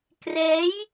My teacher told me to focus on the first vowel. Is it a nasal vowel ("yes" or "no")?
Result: no